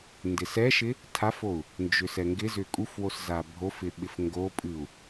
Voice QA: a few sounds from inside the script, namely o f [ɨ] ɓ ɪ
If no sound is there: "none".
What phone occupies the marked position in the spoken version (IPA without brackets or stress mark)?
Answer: ɪ